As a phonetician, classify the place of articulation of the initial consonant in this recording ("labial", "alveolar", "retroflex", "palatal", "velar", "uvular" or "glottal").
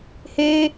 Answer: glottal